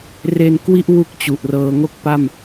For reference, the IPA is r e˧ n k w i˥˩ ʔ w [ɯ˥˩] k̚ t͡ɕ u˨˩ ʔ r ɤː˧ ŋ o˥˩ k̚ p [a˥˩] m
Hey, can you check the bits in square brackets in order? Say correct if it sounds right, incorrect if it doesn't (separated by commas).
incorrect, correct